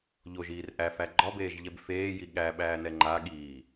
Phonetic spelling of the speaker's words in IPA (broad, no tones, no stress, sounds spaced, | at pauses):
ʎ o ʒ iː r ʔ æ f æ ɡ͡ǃ ɒ b eː ʒ ʎ ɛ b f eː j i ɠ æ ɓ æː n ɛ ŋ͡ǃ a ɠ iː